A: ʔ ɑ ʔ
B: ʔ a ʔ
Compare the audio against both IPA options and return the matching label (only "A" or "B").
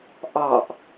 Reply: A